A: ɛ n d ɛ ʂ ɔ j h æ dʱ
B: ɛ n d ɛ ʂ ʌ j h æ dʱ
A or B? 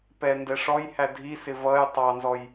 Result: A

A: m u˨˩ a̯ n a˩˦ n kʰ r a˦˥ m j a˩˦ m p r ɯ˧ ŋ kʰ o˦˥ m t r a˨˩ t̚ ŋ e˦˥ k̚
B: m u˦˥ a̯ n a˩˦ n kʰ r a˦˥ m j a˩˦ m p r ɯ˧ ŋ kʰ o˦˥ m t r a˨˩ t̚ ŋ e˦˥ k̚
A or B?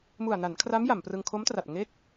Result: A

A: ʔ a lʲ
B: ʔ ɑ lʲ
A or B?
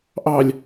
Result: B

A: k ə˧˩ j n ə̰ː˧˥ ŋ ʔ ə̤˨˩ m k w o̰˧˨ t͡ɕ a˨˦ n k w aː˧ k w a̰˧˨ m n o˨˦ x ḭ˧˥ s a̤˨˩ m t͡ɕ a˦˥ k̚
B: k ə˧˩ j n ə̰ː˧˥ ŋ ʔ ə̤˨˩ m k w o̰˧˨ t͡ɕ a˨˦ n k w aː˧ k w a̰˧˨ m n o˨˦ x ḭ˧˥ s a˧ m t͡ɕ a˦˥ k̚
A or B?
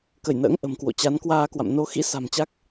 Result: A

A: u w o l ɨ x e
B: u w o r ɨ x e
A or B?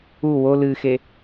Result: A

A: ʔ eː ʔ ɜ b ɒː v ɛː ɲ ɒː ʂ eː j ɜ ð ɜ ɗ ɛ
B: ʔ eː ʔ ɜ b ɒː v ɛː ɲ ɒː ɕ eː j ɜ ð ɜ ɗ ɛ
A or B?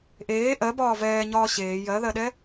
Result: B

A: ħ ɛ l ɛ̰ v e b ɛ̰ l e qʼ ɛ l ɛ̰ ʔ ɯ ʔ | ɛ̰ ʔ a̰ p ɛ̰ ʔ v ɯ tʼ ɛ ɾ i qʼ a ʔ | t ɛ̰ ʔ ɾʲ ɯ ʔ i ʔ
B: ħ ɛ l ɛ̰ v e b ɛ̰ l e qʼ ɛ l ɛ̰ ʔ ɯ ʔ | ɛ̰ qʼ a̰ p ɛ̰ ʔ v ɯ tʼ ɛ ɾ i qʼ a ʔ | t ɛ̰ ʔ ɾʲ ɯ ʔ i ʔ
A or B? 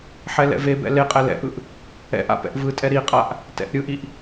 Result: A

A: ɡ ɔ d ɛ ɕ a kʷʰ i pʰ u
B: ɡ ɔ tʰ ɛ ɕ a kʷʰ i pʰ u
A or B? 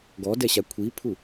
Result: A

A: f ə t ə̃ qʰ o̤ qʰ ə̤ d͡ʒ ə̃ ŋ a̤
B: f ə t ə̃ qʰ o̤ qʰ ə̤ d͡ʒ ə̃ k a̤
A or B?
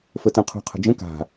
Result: B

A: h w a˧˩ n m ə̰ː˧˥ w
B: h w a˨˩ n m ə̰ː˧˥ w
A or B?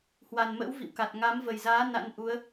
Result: B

